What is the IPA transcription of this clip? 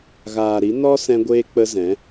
ɣ aː˨ ɾ i˨˦ n ɔ˦ s ɛ̃˧ ɡʷ eː˧ k͡p ə˧ z ɛ̃˨˦

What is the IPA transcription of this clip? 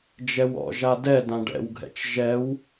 d͡ʒ ɛ w ɔ̰ ʒ a d ɛ d ã ɖ ɛ̰ w ɡʱ ɛ̰ t͡ʃ ʒ ɛ w

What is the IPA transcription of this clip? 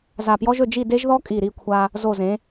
z a˧˩ p j ɔ˥ ʒ ɵ˥˧ d͡ʒ i˥˧ d e˥ ʒ ð ɔ˥ kʼ i˧˩ ɾ i˥˧ kʷʰ a˧ | z o˧˩ z ẽ˩˧

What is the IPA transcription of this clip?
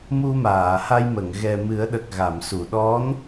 m u˧ m aː˨˩˨ h a˧ j m ə˨˩˨ ŋ ɣ ɛ˨˩ m ɨ˨˩˦ ə̯ ɗ ə˨˩ k̚ ɣ a˨˩˨ m s u˨˩˨ ɗ ɔ˧˥ n

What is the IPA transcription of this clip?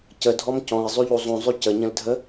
c ə dʱ ɔ m c ɔ̃ i̯ zˤ y ʎ u zˤ ũ zˤ y c ə ɲ ə̃ l dʱ ə

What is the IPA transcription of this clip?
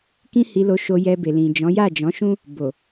k ĩ˦ h i˧ l o˧ ʃ o˧ j ɛ˧ b e˨ l ĩ˨ d͡ʒ ɔ̃˨˦ j a˦˨ d͡ʒ ɔ̃˨˦ ʃ ũ˦ | b o˨

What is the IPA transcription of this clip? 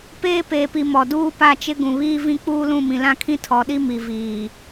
p eː˦ p eː˨ p i˨ m ɔ˨ d uː˦ p a˦˨ t͡ʃ ɪ˦ ɡ ũ˨ β iː˦ v ĩ˦ k͡p uː˦ l ũ˦˨ m ĩ˨ l ã˦ kʰ ĩ˦ tʰ ɔ˨ ɗ i˦ m i˨ v iː˨

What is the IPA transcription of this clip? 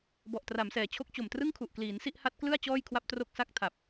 b ɔ˨˩ ʔ t r a˩˦ m s ɛː˩˦ t͡ɕʰ o˦˥ k̚ t͡ɕ o˨˩ m t r ɯ˥˩ ŋ kʰ u˨˩ ʔ k l iː˩˦ n s i˥˩ ʔ h a˦˥ t̚ k l ɯ˥˩ a̯ t͡ɕ ɔː˥˩ j kʰ w a˥˩ p̚ t r o˥˩ k̚ s a˥˩ k̚ tʰ a˨˩ p̚

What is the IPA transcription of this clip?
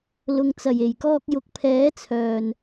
l ʊ˨ ŋ t͡s ɐ˨˩ j e˨˩ j k ɔː˧ k̚ j ʊ˨˥ k̚ pʰ ɛː˨˥ t͡sʰ œː˨˩ n

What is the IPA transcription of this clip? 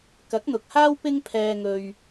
k ɐ˨˥ k̚ n̪ ʊ˨ k̚ h aː˥ w p ɪ˥ ŋ pʰ ɛː˧ ŋ ɵ˧ ɥ

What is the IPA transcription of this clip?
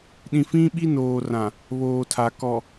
ɗ ĩ˨ f ĩ˦ ɓ i˦ n oː˨ r ã˨ | β oː˨ tʰ a˨ k ɔ˨

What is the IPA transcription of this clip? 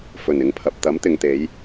f ɵ˨˩ n ɪ˨˧ ŋ pʰ ɐ˨ p̚ t̪ ɐ˨˥ m t̪ ɪ˨ ŋ t̪ e˨˧ j

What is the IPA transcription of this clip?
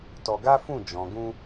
t ɔ˧ ɡ a˦ f ũ˦˨ d͡ʒ ɔ̃˨ ɡ ũ˧

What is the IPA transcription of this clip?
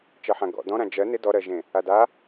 t͡ʃ ɜ ħ ã ɡ ɔ̰ d ɔ̃ ɾ ã d͡ʒ ɜ n ɪ d ɔ ɾ ɜ ʒ ẽ | a d a

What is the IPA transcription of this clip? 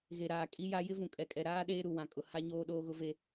ɣ e˨ ɾ aː˨ kʼ i˦ j a˦ j ɪ˦ v ũ˨ kʼ ɛ˨ kʼ ɛ˨ ɾ aː˦ ɗ eː˦ ɾ u˨ w ã˨ kʼ ʊ˨ h a˦ ɲ oː˦ ɗ oː˦ ɣ ʊ˦ v e˦

